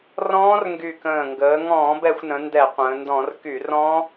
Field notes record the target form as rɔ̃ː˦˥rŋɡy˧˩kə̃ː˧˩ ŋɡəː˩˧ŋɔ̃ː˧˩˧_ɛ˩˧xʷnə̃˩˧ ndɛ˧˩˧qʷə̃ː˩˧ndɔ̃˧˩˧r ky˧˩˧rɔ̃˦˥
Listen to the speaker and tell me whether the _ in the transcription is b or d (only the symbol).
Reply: b